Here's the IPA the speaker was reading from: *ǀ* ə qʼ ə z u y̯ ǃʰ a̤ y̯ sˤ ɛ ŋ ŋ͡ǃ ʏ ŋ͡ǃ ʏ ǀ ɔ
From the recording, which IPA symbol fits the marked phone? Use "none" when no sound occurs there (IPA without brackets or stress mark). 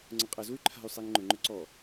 ŋ͡ǀ